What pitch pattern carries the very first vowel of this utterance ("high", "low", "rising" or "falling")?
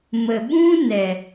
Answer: low